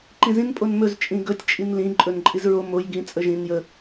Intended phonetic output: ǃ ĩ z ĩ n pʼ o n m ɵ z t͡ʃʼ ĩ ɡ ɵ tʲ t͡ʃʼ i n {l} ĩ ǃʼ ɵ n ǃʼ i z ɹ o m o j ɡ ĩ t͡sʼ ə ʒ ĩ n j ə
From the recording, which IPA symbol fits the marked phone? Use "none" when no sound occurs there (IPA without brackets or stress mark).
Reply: l